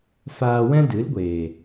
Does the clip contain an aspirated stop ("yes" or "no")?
no